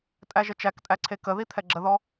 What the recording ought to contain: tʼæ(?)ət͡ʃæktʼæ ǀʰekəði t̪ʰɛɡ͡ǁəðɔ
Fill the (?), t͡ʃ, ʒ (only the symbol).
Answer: ʒ